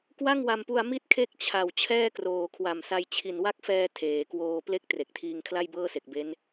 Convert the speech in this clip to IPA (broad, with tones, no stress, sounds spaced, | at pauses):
k w a˥˩ ŋ w a˧ m p u˧ a̯ m i˥˩ t̚ kʰ e˦˥ k̚ t͡ɕʰ a˨˩ w t͡ɕʰ ɛː˥˩ k r oː˨˩ kʰ w a˨˩ m s a˧ j t͡ɕʰ i˨˩ n w a˦˥ k̚ f ɛː˧ tʰ eː˩˦ k w oː˧ p l e˥˩ k̚ t r e˨˩ k̚ tʰ iː˧ ŋ kʰ l a˥˩ j b ɤː˥˩ s e˨˩ k̚ b e˦˥ n